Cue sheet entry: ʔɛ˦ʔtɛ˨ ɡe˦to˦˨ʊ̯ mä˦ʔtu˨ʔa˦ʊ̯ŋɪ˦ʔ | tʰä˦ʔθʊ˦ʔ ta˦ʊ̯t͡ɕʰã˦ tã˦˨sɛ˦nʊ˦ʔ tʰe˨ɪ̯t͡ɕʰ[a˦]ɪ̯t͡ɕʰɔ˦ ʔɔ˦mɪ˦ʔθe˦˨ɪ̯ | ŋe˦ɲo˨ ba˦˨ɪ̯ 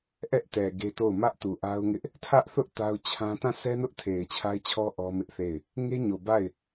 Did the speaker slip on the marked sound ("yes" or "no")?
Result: no